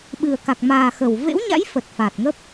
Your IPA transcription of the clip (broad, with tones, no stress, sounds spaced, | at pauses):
ɓ ɨ˨˩ ə̯ k a˨˩ k̚ m aː˨˩ x ə˧˩ w v ḛ˧˥ w ɲ a̰˧˥ j f ə˨˩ t̚ f a˨˩ t̚ ŋ ə˦˥ p̚